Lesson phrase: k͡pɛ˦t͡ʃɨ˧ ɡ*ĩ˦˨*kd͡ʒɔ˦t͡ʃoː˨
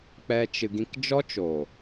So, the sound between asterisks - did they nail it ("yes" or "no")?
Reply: no